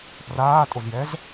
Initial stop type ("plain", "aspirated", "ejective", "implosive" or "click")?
plain